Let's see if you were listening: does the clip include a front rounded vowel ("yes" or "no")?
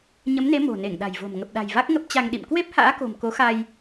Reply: no